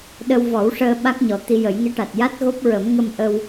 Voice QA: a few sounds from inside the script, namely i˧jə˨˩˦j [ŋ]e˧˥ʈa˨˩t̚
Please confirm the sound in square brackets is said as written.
yes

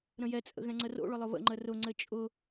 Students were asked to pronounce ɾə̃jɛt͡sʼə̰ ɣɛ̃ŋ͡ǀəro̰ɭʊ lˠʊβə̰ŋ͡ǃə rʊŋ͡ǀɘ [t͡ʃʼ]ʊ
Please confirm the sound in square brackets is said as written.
yes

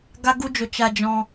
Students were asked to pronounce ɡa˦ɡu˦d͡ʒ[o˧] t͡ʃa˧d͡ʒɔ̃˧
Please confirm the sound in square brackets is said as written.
yes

